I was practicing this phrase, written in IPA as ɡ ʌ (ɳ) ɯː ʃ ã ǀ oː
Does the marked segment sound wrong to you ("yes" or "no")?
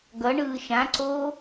no